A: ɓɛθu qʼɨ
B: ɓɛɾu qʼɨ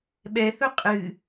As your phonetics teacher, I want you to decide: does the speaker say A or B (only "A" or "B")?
A